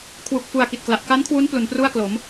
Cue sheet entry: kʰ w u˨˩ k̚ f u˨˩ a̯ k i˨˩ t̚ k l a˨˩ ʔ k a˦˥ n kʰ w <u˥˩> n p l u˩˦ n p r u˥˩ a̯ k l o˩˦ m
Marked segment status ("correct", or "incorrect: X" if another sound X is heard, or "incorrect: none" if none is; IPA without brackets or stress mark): incorrect: u˦˥